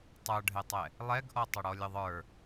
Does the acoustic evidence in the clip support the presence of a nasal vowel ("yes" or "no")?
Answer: no